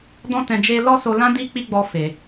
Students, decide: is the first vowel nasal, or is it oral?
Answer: nasal